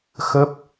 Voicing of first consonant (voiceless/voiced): voiceless